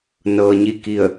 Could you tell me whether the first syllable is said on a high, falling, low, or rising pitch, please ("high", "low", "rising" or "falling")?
low